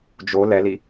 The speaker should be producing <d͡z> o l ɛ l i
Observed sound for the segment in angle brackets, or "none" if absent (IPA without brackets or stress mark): d͡ʒ